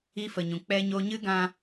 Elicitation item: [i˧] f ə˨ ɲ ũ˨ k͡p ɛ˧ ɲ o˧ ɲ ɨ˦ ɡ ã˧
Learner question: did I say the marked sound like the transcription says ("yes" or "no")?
no